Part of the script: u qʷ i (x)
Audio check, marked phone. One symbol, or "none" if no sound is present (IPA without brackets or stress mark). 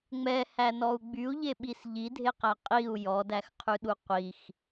x